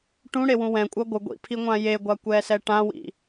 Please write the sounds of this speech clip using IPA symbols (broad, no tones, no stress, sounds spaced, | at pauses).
ʈ ũ ɽ e w ũ w ɛ̃ kʷʼ ʌ ɡʷ ɯ ɡʷ ḭ pʰ i ŋʷ ã j e ɡʷ a kʷ ɛ s ɛ ʈ ã w ḭ